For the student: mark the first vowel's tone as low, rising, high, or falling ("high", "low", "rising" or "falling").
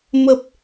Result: low